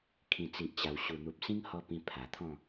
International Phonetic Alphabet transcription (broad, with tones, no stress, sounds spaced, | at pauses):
kʰ ĩ˨˩ t͡s i˨ ʔ t͡ɕ a˨˩ w ɕ u˨˩ n̪ u˨ p̚ s ĩ˦ ŋ h ɔ˧ p ĩ˧ pʰ a˨˩ t̪ʰ ɔ̃˥˧